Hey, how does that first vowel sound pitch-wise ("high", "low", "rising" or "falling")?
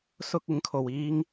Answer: high